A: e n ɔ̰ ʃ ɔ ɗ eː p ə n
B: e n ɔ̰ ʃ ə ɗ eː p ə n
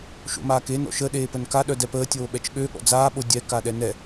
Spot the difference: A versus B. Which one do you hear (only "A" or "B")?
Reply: B